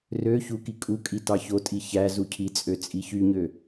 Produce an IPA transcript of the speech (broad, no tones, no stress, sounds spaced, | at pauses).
r ø ç u k i kʼ u kʼ i t ɑ ç o tʼ i ç æ z u cʰ i t͡sʼ ø t͡sʼ i ç y ɲ ø